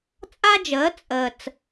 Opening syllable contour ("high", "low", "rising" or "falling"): high